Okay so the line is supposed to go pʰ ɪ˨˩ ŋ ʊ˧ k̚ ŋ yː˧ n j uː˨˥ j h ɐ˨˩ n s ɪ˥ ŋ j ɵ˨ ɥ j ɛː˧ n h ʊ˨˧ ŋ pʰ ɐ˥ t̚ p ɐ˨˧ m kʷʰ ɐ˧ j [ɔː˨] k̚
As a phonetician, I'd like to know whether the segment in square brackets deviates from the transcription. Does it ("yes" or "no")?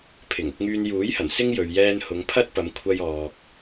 no